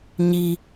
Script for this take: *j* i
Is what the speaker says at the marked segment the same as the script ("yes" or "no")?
no